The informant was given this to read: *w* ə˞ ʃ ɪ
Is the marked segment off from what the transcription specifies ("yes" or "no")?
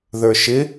yes